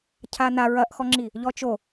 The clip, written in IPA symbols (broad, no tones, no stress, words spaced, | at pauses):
cʰana ɹɐʔxɔŋ͡ǁi | ʎɔt͡ʃo